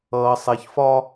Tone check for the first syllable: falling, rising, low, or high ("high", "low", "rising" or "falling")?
low